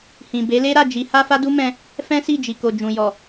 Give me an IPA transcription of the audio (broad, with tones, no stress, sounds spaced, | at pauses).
h ĩ˨ b e˨˦ l e˦ ɾ a˦˨ d͡ʒ i˨˦ h a˦ f a˦ d u˦ m ɛ̃˧ | f ɛ̃˦ s i˦˨ d͡ʒ i˨ k o˨ d͡ʒ ũ˨ j ɔ˨